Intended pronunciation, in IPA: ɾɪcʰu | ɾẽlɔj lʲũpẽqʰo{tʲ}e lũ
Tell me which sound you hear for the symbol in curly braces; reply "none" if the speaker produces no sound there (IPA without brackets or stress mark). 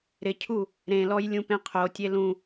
tʲ